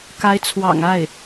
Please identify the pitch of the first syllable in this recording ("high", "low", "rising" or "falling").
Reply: rising